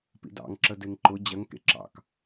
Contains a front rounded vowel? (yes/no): no